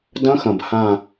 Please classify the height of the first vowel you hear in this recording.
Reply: low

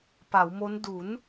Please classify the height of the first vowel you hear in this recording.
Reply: low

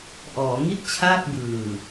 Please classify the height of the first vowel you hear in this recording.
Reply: mid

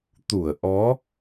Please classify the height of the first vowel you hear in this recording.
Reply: high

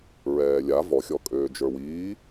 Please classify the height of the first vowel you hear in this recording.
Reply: mid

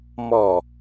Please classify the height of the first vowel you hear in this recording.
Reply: mid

